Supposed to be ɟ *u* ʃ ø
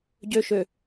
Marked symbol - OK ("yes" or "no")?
no